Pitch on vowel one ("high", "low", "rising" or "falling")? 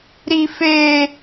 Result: high